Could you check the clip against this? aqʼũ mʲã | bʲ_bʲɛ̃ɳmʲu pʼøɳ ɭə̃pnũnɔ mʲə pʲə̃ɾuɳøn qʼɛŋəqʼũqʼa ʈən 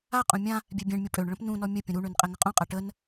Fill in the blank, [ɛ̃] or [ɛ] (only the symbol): ɛ